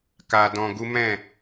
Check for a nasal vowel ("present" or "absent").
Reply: present